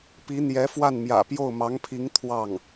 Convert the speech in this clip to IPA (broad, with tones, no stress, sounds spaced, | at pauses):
p i˧˥ n̪ j ɛ˧˥ f w a˥˩ n m j ä̰˨˩ p j o˥˩ ʊ̯ m ɑ˧˥ ŋ pʰ i˧˥ ŋ t̪ʰ w ɑ˥˩ ŋ